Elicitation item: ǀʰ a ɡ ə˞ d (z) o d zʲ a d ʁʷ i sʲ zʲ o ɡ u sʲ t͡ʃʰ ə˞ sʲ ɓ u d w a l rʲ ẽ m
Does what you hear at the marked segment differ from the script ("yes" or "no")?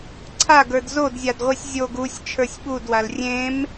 no